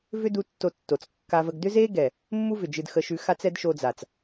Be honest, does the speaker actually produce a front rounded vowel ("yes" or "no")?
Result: yes